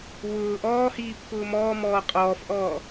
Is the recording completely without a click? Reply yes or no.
yes